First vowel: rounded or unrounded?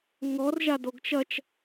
rounded